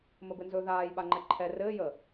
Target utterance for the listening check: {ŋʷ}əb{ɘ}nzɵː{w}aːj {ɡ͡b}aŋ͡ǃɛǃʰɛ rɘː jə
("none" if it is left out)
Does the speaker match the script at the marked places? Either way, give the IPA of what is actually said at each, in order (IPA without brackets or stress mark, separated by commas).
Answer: m, ɘ, ð, ɓ